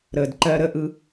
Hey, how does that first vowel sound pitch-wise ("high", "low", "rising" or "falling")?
low